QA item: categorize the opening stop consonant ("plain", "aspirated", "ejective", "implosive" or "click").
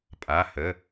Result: ejective